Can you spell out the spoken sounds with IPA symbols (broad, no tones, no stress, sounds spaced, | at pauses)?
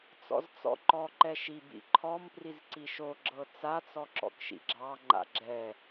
t͡s ɔ̰ z t͡s ɔ̰ ǃ ɔ ǃ ɛ ʃ i b ḭ ǃʰ ɔ m p r i z ǀ i ʃ o ɡ͡ǁ ɤ t͡s a t͡s ɔ ǁ ɔ̰ k ʃ ḭ ɡ͡ǁ ɑ ŋ͡ǃ a̰ ɡ͡ǁ ɛ